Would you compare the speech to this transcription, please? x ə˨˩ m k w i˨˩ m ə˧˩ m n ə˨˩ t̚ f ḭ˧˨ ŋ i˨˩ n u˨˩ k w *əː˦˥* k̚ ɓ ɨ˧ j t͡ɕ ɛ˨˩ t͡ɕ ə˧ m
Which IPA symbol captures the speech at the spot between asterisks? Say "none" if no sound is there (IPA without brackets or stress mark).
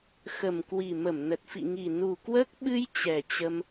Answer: əː˦˥